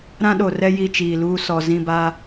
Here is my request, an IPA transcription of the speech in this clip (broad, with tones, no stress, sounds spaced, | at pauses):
ɾ ã˦ ɗ o˨ r ɛ˦ j i˦˨ t͡ʃ iː˨ l uː˦ s ɔ˨ z ĩ˦˨ b a˦